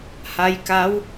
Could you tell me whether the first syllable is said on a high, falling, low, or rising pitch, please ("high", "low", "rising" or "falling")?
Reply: rising